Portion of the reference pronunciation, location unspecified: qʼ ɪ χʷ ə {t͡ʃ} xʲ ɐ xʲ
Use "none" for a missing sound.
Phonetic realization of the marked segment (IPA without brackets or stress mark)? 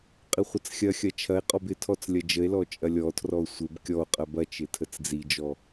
t͡s